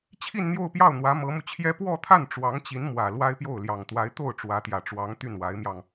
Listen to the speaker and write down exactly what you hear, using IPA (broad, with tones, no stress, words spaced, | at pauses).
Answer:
t͡ɕʰi˥˧nn̪jo˥˧ʊ̯pjɑ˥˩ʊ̯n̪wä˧˥ mɤ˧˥mu˧t͡ɕʰjɛ˥ pwɔ˥˧t̪ʰa˥˩n ʈ͡ʂwɑ˧˥ŋt͡ɕi˧˥nmwä˨˩ lwa˥ɪ̯pjo˥˩ʊ̯ ljɑ˨˩ŋt̪wa˧˥ɪ̯ t̪o˥˩ʊ̯ʈ͡ʂwä˧˥t̪jä˨˩ʈ͡ʂwɑ˧˥ŋ t̪y˥˩nwa˧˥ɪ̯mjɑ˧ŋ